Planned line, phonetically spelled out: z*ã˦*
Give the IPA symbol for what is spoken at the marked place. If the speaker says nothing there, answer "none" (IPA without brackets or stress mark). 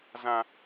ã˦